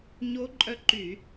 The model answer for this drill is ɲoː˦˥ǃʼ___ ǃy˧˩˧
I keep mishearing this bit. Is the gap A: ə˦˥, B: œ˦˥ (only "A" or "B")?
B